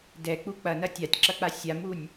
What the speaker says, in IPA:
dɛk͡pu k͡pɐnɐ tʲatʲǁɐk͡pa sʲamunʲ

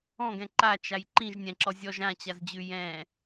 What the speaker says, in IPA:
ɔ̃ɡɛ̃ ǃat͡ʃaj ǃĩʒ nʲɛ̃ǁɔ zʲɔʒ ãt͡ɕazd͡ʑʉ jɛ̃

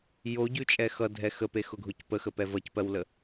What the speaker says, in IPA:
joɟʉt͡ʃʼɛ xʌdʱɛ xəpexʊɡʱʊc pəxəpɛ vʌcpɜwlə

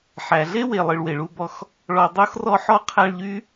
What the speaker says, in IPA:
ħæ˩ɮe˥we˩ lˠɨ˨ɭwe˩ɭu˦bɔ˦x | ɭɔ˨ dˤo˥xrɔ˦ħɔ˥ qʰæ˦ɭʎy˥

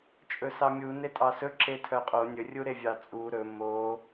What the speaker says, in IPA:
t͡ʃʼɵsɑmʲu netʼɑsɵ ǁetʰœqʼo nʲɵ rʲuɾevʲɑt͡sʼu ɾɵ mo

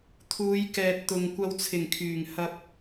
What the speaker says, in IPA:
t̪ʰuː˨˧jkɛː˨t̚t̪ʊ˨ŋ kʷɐ˧wt͡sʰɪ˨˩ŋ kʰyː˨˩ŋhɐ˧p̚

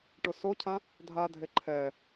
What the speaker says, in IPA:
ʈʊsocʰã | dʱadʱe ǃʰɛ

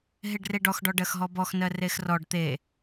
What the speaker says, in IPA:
ɦeɖreɖɔx ɖɔɖɜxɦɔbɔx nɜrexrɔɖ t̪e

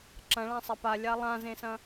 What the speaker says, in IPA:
ǁɐ̃ɭãsˤɐ palʲa lˠãzẽsɐ̃

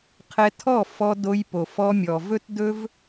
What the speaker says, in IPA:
qʰɛ˧tʰɔ˦˨ fɔ˧do˧j po˨fɔ˧mʲɔ˨vɵ˦t dɵ˦v

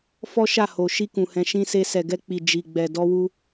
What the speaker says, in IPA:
fɔ˦ ʃa˦˨ ho˨ ʃi˧kũ˨hɛ̃˨ ʃĩ˧se˧ sɛ˨ɡɛ˧k͡pi˨ d͡ʒi˨ɡ͡bɛ˨ dɔ˧wu˧

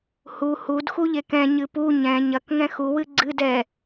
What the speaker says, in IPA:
hu hud xuʎekɛ̃ ɲɨpu ɲɛ̃ ɲɐk ŋɛ̃xu wɨɡ͡ǀɨd ɛ

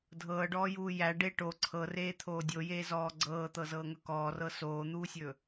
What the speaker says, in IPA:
dʱɤːɖɔːjuː jæ ɖe ʈo ǀʰɤreːt̪ʰoː dʲojeːzɔː ɡ͡ǀɤːt̪ɤzɤːŋɵ kɔːrɤ soːn̪uːsʲɵ

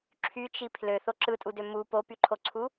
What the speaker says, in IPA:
ǁʰyt͡ʃi pʰløθo ǁɯtʼudø mu popyǃʰoǀʰu

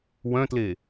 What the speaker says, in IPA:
wœ̃tle

